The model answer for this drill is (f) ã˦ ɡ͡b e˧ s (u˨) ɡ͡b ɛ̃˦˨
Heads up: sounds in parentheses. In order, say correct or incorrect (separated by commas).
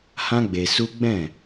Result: incorrect, incorrect